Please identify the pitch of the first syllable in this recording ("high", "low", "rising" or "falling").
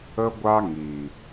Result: high